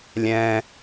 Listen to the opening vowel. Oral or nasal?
nasal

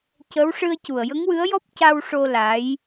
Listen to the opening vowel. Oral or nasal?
oral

